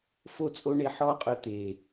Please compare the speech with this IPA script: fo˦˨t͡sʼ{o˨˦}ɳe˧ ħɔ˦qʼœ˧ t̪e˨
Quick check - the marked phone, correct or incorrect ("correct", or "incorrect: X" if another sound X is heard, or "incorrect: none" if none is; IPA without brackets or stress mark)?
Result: incorrect: o˦